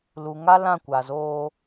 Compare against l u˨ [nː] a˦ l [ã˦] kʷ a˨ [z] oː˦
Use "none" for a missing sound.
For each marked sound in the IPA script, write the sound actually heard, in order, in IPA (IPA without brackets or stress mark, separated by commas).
ŋ, ã˦˨, z